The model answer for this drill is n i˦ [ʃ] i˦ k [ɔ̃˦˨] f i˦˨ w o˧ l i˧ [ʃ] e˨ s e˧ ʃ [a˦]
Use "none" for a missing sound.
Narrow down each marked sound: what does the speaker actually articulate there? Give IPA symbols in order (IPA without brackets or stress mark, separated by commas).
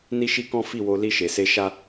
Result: ʃ, ɔ̃˦, ʃ, a˦